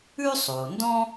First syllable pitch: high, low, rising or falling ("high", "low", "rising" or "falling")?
high